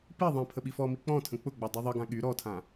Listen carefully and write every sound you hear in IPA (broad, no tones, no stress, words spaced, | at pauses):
pi ðˤĩ pʰəɓifɔmi k͡pɔ̃tʰə̃ k͡pʊɡ͡bɔ dˤyðˤəɡã ɠy ɾɔtʰã